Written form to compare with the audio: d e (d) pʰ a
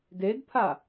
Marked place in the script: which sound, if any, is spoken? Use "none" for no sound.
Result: d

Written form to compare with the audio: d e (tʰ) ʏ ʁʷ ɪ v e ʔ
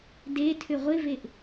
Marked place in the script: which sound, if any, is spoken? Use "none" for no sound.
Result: tʰ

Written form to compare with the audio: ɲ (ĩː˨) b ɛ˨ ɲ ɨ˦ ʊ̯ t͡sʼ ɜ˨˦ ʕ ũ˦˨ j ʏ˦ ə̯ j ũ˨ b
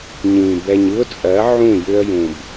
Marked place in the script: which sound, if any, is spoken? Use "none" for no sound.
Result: ĩː˨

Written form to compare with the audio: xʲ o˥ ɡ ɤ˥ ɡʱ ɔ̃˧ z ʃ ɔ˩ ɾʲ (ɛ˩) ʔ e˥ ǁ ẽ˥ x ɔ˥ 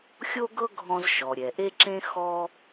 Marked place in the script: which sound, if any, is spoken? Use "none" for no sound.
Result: ɛ˩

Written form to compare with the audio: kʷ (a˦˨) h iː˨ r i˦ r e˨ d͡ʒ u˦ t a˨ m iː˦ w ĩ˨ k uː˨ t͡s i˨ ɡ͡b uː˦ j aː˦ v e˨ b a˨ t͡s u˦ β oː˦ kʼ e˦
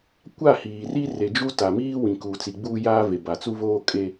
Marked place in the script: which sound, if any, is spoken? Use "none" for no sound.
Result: a˦˨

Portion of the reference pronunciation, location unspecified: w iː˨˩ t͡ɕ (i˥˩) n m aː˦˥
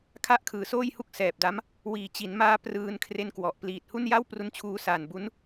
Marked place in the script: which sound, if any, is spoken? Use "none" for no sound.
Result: i˩˦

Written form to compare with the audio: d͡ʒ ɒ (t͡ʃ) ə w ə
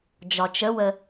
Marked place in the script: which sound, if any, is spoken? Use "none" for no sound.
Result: t͡ʃ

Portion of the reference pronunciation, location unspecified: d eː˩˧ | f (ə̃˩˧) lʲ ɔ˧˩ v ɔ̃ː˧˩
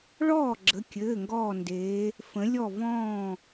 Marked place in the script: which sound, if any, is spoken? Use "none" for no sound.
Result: ə̃˩˧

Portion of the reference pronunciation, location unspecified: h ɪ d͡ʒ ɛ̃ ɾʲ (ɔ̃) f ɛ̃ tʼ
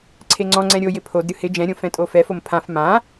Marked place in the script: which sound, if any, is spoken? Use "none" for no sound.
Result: õ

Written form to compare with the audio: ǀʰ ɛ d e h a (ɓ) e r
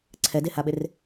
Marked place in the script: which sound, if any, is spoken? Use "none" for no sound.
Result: ɓ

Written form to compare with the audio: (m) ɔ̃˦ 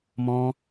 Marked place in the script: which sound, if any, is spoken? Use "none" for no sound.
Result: m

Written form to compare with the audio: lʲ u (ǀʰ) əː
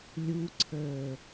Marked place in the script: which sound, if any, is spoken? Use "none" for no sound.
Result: ǀʰ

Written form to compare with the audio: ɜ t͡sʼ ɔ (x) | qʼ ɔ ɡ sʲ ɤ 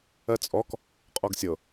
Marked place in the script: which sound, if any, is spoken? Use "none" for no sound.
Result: k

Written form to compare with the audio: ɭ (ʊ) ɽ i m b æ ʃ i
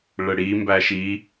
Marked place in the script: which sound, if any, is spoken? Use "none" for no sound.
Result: ə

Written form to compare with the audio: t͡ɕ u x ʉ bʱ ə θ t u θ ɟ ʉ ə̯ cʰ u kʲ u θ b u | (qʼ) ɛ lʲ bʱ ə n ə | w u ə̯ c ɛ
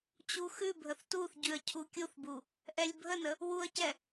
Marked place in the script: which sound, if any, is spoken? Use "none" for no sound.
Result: ʔ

